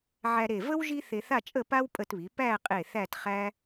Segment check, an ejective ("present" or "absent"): present